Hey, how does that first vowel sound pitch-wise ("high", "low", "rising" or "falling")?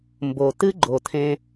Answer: low